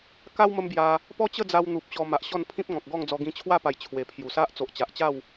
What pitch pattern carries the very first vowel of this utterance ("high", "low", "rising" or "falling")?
high